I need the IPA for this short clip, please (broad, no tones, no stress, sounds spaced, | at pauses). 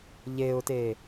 ʎ e ʊ̯ t e